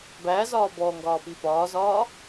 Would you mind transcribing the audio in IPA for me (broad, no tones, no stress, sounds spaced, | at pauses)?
b æ z ɒː b ɔ ŋ ɡ ɒː p i p ɒː z ɒː